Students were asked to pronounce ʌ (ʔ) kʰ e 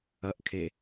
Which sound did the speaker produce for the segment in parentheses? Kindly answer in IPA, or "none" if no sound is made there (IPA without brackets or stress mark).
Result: ʔ